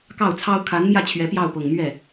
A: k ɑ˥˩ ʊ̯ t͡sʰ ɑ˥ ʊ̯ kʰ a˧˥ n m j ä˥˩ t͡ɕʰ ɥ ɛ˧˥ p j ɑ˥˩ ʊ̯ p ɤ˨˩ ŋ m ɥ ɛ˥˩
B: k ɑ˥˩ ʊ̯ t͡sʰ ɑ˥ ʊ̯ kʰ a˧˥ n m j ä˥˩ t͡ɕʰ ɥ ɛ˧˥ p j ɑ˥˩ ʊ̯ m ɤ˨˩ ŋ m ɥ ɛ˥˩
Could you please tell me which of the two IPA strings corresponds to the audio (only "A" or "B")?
A